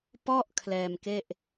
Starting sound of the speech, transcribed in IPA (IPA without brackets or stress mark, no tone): p